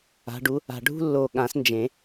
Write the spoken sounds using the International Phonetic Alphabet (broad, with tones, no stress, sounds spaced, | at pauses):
a̤˨˦ ɖ u˨˦ | a̤˨˩ ɖʱ ṳ˦ lː o˨˩ ɠ ã˨˩˦ s n d͡ʒ ẽ˨˩˦